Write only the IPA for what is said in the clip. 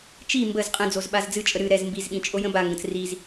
t͡ʃ i m b ə z qʼ ə̃ d͡z o z ɓ a z d͡z ɨ t͡ʃʼ ə ɾ ɨ ɾ ɛ z m b i z ɓ ĩ t͡ʃʼ o j ə̃ b a ŋ ɡ ə̃ t͡s r i z

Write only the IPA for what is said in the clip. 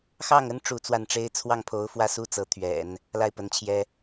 x ɑ˥˩ ŋ ə˥ n ʈ͡ʂ u˥˧ t͡s w a˥˩ n ʈ͡ʂ e˥ ɪ̯ t͡sʰ w ɑ˥˩ ŋ pʰ o˧˥ ʊ̯ f w ä˥˧ s u˥˩ t͡s ɤ˧˥ t̪ʰ ɥ ɛ̰˨˩˦ n | l a˥˩ ɪ̯ p ə˧˥ n t͡ɕʰ j ɛ˥

